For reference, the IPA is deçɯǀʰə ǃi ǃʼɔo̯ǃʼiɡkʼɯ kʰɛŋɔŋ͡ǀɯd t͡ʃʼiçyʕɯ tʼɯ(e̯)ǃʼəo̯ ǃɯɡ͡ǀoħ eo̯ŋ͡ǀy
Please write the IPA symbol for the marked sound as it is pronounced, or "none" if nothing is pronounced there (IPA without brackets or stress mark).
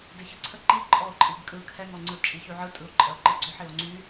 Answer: o̯